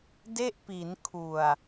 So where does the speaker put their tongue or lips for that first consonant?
tongue tip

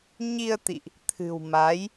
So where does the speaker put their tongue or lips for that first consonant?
palate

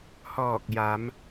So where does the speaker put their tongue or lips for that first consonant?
throat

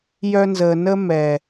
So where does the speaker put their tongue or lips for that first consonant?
palate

